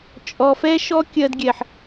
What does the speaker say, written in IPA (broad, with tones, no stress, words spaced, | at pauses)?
t͡ʃʼɔ˨fɛ˦ ʃɔ˦kʲɜ˧dɡʲɛ˨ħ